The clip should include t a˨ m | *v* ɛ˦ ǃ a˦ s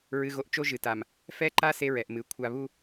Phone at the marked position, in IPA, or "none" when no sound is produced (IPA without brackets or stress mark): f